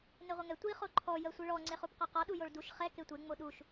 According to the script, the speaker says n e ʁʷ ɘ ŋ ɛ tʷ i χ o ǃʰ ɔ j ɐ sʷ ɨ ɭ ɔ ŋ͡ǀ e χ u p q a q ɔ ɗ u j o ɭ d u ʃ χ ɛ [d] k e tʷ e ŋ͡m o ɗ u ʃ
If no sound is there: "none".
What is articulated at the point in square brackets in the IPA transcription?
none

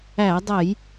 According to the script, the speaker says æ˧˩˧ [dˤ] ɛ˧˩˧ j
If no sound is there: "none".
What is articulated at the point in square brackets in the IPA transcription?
dˤ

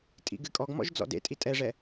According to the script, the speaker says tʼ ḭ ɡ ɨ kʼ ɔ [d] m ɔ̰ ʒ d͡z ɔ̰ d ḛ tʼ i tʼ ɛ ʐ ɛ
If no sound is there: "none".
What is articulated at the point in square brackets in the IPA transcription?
ɡ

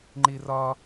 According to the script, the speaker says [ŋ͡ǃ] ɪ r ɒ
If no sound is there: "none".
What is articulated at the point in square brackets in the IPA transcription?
ŋ͡ǃ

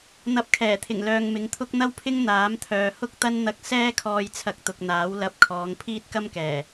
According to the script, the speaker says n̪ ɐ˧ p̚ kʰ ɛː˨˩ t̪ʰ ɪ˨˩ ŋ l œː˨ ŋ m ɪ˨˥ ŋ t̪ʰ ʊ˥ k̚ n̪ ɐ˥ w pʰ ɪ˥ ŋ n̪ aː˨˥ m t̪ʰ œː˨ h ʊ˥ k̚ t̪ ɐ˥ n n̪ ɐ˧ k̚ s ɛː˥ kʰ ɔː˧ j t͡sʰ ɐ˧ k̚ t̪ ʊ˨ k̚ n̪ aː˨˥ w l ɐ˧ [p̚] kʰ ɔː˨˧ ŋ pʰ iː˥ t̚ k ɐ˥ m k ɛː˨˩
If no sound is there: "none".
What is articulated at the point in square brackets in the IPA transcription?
p̚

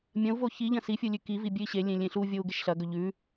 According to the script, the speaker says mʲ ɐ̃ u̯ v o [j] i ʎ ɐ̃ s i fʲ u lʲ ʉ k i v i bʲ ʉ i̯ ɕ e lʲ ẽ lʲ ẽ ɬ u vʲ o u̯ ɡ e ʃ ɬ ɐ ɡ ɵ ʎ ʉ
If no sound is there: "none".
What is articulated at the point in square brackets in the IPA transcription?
ç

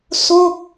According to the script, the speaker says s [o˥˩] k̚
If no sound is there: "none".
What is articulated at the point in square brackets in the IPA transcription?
o˥˩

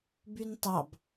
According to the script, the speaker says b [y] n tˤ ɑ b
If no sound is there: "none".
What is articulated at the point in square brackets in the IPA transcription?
y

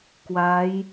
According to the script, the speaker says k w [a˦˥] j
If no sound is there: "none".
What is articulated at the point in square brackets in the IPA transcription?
a˦˥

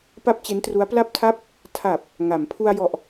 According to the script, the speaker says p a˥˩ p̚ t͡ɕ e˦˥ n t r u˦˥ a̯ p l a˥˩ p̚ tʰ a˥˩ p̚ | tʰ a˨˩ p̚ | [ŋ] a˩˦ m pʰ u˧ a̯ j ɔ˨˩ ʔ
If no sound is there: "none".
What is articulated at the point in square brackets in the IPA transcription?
ŋ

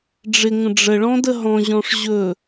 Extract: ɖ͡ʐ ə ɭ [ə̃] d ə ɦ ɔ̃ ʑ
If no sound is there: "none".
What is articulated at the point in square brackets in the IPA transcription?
ɔ̃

